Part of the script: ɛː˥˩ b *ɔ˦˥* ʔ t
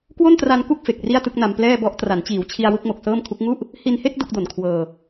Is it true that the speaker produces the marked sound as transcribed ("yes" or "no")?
yes